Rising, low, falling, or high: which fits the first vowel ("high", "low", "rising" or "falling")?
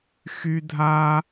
high